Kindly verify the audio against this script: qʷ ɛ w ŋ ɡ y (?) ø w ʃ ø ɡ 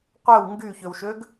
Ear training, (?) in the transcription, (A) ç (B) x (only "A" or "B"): A